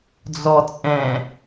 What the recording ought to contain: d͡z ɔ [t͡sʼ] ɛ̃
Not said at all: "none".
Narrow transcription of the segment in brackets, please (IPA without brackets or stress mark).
t͡sʼ